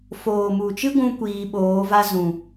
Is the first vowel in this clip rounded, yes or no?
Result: yes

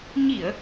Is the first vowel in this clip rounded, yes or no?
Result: no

